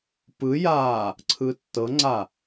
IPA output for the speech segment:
pɯjaː | ǀʰɯːtːɤŋ͡ǀa

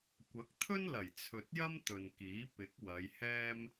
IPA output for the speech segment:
kʷɐ˨˥k̚t̪ʰɵ˥nlɐ˨˩j t͡sʰɵ˨t̚jɐ˥m t̪ɵ˨nkiː˨˥ pɪ˨˥k̚ wɐ˨˧jhɛː˥m

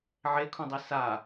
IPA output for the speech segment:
ʕekʰũdˤi sa

